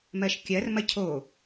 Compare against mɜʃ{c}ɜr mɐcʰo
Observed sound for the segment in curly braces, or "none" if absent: kʲ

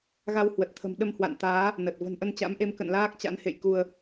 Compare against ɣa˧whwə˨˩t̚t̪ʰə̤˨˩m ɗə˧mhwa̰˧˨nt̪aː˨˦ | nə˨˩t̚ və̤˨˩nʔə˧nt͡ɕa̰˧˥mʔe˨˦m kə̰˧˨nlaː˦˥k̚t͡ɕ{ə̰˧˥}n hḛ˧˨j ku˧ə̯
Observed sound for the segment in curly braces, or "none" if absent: a̰˧˥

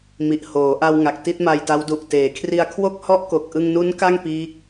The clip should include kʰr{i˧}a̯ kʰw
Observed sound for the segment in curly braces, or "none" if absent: i˧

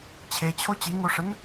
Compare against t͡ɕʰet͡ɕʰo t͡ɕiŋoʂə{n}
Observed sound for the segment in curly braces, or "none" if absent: n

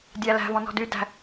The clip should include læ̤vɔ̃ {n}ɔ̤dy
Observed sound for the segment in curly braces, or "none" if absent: n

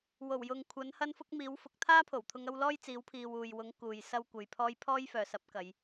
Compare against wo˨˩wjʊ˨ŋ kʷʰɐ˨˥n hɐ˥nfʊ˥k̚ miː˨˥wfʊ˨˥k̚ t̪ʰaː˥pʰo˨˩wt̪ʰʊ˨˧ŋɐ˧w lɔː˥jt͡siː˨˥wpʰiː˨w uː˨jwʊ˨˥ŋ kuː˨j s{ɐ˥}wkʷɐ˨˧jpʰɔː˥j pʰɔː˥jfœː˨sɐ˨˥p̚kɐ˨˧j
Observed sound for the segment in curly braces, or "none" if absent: ɐ˥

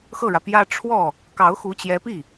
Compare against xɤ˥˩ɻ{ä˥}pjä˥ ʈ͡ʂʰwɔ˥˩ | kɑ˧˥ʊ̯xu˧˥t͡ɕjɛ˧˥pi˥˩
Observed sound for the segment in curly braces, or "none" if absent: ä˩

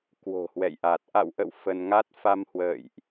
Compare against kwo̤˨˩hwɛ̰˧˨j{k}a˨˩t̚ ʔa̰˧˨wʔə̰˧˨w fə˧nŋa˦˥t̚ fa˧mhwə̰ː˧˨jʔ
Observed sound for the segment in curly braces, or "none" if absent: ʔ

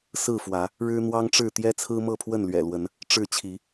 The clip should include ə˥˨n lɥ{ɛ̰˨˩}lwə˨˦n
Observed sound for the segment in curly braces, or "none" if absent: ɛ̰˨˩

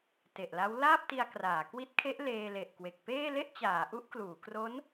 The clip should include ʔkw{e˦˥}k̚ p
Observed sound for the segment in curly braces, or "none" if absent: e˨˩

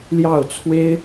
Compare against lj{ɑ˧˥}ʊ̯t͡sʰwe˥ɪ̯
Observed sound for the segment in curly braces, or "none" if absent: ɑ˥˩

